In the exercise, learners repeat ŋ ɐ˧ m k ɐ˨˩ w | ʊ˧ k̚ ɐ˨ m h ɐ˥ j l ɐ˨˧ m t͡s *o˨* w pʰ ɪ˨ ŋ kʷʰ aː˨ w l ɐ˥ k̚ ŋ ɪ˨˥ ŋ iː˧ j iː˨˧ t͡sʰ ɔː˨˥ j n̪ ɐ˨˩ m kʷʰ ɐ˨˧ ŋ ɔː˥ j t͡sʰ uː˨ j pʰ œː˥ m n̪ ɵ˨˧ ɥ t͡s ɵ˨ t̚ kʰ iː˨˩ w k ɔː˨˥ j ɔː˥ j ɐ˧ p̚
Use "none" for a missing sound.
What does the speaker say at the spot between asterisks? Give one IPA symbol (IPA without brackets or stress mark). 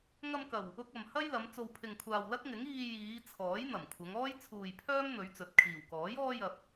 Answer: o˨